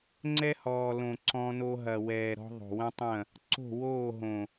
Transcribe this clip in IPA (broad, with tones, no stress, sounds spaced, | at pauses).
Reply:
ŋ͡ǀ ɛ˦ h ɔː˨ l õ˨ ǀ ɔ̃˦ n o˦ ɦ ɐ˨ w ɛː˨ ɾ ɔ̤˦ ðˤ o̤˨ w ɐ̃˦ tˤ ɐ̃˦˨ | ǀ o̤˦˨ w oː˦˨ ɦ õ˨